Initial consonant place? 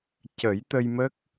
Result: palatal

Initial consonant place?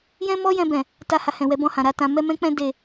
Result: palatal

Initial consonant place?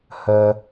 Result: glottal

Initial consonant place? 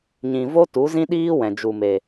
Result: palatal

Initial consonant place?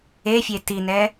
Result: labial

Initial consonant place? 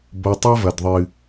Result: labial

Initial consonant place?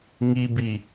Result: velar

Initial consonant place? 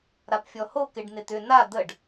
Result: alveolar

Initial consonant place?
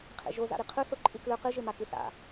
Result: uvular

